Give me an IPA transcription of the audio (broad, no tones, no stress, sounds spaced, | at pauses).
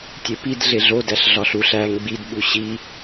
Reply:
tʲ e p i d ɮ e ɮ o d æ ɬ ɮ ɒ ɬ u ɬ æ ŋ ɡ͡b i d ɓ u ɕ i